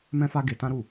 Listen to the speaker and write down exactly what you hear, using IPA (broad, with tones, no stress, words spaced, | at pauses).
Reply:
mɛ̃˧fa˧ ɡe˧tã˦ɾu˦˨